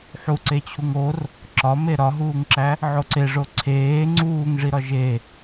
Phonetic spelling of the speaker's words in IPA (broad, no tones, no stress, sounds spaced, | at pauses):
ħ u ǀ e t͡ɕʰ u ŋ o r | ǁ ɒ m e ɾ ɒ ɦ uː ŋ ǁ æ | ʕ o ǀ e ʐ o ǀʰ eː ŋ͡ǀ uː ŋ ʐ i ɾ ɒ ʒ e